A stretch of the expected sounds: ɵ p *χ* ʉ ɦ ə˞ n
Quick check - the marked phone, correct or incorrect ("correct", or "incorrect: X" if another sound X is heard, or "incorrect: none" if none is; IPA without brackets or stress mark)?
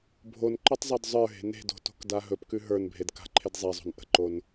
incorrect: k